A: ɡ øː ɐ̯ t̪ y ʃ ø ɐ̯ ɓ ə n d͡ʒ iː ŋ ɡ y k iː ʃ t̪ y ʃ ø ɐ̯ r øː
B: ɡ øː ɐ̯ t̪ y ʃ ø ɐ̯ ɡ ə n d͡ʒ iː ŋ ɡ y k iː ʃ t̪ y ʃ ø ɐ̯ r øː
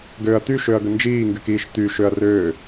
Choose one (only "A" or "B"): B